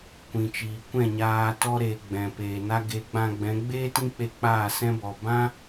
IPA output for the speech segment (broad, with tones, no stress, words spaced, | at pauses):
kʷĩ˨t͡ʃiː˨kʷɛ̃˦˨ɲaː˧ tɔ˧ɾeː˨ ɡ͡bɛ̃˨peː˨na˦ ɡe˨˦ɡ͡bã˧ɡ͡bɛ̃˨˦ ɡ͡beː˦tĩ˦k͡pe˧ k͡paː˦˨sɛ̃˦bɔ˨ bã˦